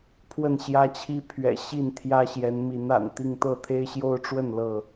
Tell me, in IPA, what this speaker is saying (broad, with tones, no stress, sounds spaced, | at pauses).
pʰ w ə˥˨ n ɕ j ä˦ t͡ɕʰ i˦ pʰ ɥ ɛ̰˨˩ ɕ i˥˨ n t̪ʰ j ä˦ ɕ j ɛ˨˦ n m i˨˦ n a̰˨˩ n t̪ i˥˨ ŋ t̪ ɤ˥˨ t̪ʰ e˦ ɪ̯ ɕ j o˦ ʊ̯ ʈ͡ʂ w ə˥˨ n l ɤ˥˨